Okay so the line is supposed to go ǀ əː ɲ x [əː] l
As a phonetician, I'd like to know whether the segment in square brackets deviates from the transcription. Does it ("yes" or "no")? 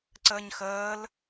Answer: no